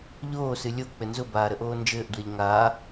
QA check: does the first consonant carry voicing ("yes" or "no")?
yes